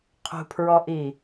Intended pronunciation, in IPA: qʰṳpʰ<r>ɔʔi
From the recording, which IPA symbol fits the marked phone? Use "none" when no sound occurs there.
ɹ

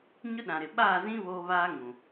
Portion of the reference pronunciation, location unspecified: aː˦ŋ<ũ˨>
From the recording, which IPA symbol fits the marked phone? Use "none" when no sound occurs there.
ũ˨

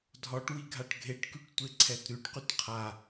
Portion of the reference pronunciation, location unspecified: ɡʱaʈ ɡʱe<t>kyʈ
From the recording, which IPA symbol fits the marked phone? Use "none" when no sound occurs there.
ʈ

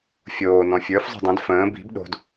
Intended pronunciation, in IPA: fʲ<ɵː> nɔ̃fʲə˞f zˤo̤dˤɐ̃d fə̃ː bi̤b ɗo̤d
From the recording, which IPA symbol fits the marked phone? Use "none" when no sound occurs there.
oː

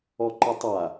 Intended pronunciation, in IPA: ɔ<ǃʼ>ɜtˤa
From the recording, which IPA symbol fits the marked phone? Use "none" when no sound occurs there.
ǃ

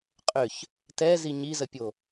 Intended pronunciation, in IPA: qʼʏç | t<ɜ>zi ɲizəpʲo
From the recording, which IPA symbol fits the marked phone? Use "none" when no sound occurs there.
ɛ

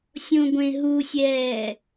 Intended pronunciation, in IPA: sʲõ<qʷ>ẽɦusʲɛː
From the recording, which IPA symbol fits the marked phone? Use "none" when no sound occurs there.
ɡʷ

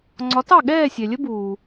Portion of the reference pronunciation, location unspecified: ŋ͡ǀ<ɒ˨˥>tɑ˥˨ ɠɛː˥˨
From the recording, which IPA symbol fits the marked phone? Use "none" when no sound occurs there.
ɒ˨˥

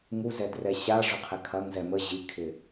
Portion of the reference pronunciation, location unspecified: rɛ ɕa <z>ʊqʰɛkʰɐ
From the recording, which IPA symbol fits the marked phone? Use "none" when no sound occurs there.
ʐ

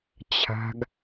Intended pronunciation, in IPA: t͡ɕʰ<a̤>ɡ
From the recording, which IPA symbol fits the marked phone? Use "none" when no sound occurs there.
a̤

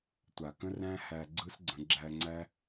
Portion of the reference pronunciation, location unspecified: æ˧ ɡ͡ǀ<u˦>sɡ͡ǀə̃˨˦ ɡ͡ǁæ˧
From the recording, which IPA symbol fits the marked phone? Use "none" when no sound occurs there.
ɯ˦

